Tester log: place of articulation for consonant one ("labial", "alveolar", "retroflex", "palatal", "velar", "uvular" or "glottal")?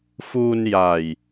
labial